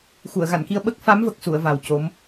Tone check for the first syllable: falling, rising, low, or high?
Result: low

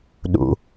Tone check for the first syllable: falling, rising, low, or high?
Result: low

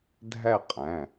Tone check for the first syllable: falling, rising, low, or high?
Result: falling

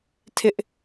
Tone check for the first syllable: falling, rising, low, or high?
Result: high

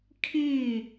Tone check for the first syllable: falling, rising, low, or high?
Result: falling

